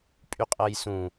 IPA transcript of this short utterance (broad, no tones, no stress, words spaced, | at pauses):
pʼyqʼɤjsũ